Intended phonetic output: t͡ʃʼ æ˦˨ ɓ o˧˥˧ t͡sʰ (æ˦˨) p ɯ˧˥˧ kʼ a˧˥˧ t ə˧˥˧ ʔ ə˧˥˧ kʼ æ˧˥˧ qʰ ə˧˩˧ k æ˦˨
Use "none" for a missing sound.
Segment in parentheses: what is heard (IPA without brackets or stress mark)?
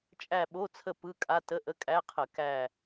ə˦˨